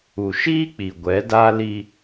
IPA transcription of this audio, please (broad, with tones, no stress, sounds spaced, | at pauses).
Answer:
u˨ ʃ iː˦ k͡p i˨ ɡʷ ɛ˨˦ d a˦ l i˦